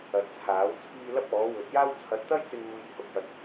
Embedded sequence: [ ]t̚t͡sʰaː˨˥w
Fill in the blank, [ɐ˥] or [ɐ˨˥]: ɐ˨˥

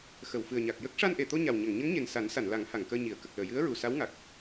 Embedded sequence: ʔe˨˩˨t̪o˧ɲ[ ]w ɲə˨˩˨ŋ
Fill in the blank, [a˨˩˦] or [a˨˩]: a˨˩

